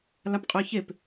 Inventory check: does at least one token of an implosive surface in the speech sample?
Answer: no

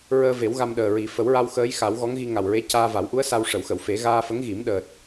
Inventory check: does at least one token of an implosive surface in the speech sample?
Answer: yes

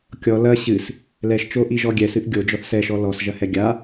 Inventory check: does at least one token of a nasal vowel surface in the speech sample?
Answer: no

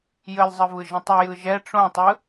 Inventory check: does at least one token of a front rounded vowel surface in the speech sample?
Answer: yes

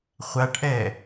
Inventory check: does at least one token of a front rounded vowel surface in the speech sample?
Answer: no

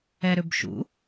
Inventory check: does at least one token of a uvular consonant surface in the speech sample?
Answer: no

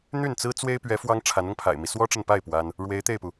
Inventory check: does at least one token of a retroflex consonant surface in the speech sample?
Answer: yes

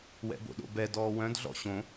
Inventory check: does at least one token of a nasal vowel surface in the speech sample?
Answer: yes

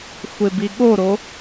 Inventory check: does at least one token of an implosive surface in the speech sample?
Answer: yes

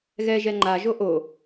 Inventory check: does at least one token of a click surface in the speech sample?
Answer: yes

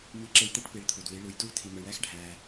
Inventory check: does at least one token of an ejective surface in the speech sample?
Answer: no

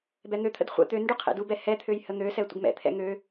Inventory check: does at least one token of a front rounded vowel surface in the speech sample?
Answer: yes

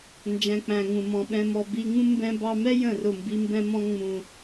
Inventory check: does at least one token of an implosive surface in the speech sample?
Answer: yes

